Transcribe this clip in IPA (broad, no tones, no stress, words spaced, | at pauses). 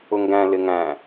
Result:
ʊŋɡæ̃ lɪŋæ̃